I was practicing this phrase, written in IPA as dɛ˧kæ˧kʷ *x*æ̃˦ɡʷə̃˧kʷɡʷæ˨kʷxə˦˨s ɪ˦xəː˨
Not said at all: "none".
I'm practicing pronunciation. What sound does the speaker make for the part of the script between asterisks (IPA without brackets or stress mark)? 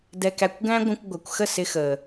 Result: ɡ